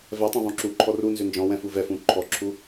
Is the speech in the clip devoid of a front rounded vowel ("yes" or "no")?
no